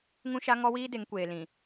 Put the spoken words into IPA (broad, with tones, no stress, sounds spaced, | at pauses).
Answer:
ŋ ũ˦ ʃ a˦ ŋ ɔ˦ w iː˦ d e˨˦ ŋ kʷ eː˨ l ĩ˨